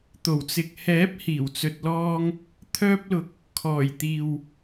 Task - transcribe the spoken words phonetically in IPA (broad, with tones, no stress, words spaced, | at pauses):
t̪o˨˩wt͡sɪ˨k̚ hɛː˨˥p̚hiː˨˩wt͡sɵ˨t̚lɔː˧ŋ | t̪ʰœː˧p̚lʊ˨k̚ | kʰɔː˨˩jt̪iː˨w